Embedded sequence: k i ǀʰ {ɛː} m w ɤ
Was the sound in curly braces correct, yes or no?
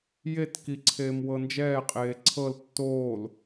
no